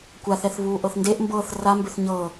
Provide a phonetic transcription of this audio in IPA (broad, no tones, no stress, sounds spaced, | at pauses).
kʷ a θ ɛ θ β uː ʔ ɤ θ n d e ʔ m b ɤː θ r a m b ʏ θ ɲ ɤ